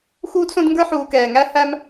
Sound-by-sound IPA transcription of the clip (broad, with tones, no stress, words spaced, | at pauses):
xuː˦dsõ˦d ŋɡə˞˥ħuː˨kɛː˩ ŋæ˥ hæ˥m